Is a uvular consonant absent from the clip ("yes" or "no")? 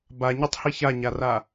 yes